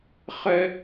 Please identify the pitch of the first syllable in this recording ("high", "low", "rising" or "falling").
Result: high